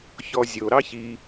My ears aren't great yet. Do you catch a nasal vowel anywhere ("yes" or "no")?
no